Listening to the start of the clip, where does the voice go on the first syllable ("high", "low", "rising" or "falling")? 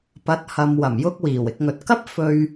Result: rising